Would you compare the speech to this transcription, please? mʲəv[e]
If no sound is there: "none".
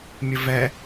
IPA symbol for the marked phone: ɛ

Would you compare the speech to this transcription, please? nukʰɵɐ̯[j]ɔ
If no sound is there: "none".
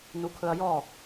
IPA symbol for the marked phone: j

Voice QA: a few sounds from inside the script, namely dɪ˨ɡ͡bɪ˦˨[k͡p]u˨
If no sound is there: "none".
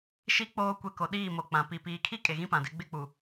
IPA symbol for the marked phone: k͡p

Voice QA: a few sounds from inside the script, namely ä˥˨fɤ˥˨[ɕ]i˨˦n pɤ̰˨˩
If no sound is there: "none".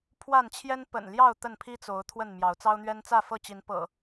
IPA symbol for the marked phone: t͡ɕ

